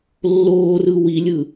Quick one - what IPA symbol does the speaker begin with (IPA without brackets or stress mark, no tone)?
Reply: lː